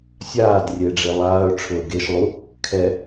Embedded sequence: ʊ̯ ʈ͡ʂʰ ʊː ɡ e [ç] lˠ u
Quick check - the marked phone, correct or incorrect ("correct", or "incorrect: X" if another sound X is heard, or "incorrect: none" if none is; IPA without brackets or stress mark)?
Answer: incorrect: ʃ